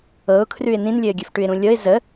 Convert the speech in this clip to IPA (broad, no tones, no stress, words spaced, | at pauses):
ɤʊ̯kʰrʉɪ̯ nĩnlʲɘːɡʲɘfʈʉɪ̯ ɾũlʲɤɪ̯ zə